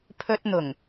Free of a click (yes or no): yes